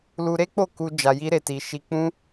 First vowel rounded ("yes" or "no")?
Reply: yes